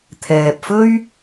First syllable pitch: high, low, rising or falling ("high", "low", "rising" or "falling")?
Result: low